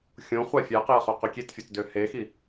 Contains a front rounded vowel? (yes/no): yes